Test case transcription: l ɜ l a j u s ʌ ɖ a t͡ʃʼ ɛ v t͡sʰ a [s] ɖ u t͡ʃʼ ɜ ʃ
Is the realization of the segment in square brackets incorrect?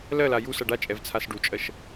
no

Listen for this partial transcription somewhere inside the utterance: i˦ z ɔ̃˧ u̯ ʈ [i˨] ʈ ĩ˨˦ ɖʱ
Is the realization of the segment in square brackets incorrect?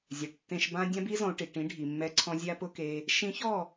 no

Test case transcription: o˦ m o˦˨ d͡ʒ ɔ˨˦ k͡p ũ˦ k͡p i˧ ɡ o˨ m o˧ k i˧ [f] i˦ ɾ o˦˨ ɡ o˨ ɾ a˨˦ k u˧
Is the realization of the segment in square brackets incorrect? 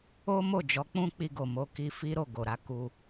no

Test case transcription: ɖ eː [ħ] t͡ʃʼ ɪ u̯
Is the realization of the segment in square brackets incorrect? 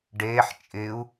no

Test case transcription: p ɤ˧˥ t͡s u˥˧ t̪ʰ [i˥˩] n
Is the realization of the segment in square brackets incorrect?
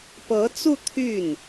yes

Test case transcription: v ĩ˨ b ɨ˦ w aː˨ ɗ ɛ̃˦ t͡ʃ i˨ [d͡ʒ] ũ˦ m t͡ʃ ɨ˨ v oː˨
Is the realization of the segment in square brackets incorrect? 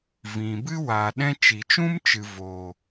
yes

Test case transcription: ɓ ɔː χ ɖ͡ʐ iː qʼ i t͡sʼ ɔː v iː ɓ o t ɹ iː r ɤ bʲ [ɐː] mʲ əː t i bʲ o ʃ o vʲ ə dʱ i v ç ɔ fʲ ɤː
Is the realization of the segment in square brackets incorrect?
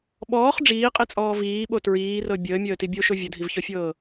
yes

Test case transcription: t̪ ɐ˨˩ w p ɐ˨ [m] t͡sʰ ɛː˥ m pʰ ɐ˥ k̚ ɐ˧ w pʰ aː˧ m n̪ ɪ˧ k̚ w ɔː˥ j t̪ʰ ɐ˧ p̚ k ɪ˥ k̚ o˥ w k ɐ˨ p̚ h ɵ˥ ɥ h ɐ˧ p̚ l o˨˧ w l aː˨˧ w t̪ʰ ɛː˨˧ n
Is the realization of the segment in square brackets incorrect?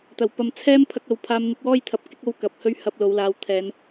no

